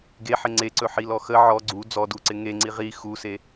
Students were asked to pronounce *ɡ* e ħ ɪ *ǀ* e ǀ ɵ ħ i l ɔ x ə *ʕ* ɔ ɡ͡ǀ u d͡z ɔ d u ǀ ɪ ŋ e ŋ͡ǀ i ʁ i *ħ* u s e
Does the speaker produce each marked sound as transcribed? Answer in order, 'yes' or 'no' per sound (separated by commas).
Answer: yes, no, yes, no